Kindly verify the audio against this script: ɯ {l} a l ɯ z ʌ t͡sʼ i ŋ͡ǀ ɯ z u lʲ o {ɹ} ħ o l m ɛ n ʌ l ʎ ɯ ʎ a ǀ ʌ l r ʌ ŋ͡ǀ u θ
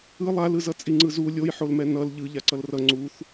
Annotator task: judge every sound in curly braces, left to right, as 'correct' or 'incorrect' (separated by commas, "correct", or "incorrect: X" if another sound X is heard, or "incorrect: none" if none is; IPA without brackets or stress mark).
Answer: incorrect: lˠ, incorrect: j